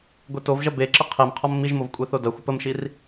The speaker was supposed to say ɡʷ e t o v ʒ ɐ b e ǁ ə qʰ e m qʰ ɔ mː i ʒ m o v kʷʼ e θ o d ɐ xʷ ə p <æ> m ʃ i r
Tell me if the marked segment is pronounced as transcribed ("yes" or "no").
no